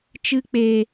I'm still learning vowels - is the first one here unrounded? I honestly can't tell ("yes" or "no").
yes